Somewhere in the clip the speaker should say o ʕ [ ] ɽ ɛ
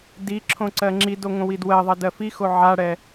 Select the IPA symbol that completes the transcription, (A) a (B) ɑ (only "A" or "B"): A